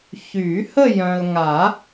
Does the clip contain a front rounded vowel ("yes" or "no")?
yes